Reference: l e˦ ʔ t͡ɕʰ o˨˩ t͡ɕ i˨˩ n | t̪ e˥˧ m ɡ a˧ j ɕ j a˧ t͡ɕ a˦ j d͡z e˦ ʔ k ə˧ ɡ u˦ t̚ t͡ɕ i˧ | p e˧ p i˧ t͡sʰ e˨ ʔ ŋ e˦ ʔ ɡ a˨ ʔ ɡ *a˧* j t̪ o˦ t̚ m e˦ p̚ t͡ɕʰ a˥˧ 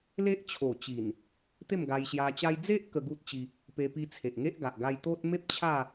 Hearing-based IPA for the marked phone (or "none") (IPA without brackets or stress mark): a˧